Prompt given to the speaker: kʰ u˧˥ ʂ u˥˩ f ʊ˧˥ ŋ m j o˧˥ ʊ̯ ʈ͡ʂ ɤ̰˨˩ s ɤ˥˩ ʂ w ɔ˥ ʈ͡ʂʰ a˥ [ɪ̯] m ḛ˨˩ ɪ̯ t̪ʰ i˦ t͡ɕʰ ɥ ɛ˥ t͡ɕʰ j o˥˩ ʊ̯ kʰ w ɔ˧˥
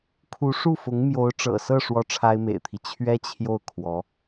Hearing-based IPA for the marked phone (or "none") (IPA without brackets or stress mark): ɪ̯